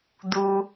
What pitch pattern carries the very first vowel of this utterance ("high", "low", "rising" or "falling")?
high